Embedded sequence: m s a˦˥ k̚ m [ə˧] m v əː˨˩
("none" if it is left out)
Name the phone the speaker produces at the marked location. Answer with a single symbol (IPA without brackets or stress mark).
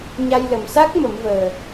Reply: ə˨˩˦